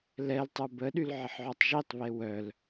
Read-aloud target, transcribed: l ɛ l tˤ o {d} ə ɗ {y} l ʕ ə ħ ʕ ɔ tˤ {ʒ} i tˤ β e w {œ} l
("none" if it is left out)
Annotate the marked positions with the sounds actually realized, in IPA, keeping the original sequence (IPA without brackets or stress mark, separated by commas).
b, y, ʒ, œ